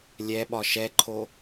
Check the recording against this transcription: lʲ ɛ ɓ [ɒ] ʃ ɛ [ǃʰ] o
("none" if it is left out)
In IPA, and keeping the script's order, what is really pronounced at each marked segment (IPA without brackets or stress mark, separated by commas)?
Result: ɒ, ǃʰ